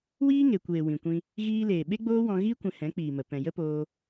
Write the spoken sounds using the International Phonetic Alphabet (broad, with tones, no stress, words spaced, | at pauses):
wiː˦ ŋe˨kʷeː˨ wĩ˨kʷĩ˧ | ɣiː˧leː˨ ɓe˦ɡ͡boː˦wɔ̃˧ ɣi˦ kʷɛ̃˧hɛ̃˨˦k͡piː˨mə˨ pɛ̃˨ jə˦poː˧